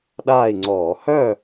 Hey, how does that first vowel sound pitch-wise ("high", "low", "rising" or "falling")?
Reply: falling